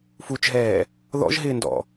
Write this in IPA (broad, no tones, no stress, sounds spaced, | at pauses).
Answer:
f u t͡ʃ ɦ ɛː | ð ɔ̰ ʒ ɦ ɪː n d ɔ̰